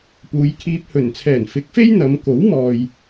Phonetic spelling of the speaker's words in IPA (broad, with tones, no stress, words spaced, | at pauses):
puː˨˧jkʰiː˧p̚ hɵ˨˩nt͡sʰɛː˨˩n fɪ˨˥k̚fe˥j n̪ɐ˨˧m ko˨˥wmɔː˨j